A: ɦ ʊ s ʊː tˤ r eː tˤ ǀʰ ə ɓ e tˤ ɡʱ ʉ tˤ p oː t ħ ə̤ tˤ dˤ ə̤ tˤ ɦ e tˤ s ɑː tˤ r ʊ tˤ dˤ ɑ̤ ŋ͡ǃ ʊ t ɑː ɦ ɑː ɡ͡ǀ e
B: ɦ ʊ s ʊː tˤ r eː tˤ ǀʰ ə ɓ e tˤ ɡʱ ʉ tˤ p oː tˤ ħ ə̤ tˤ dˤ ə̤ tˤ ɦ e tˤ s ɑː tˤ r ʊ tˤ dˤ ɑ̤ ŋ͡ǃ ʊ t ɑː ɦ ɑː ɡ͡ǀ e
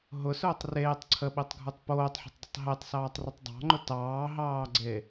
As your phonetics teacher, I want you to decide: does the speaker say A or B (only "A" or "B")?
B